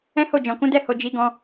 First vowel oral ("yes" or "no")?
no